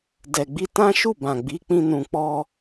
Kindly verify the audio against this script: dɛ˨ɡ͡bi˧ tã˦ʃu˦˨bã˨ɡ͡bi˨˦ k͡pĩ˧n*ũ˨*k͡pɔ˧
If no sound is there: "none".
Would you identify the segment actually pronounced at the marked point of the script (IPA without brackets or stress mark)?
ũ˨